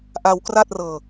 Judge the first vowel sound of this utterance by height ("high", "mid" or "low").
low